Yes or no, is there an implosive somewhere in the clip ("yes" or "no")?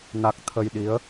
yes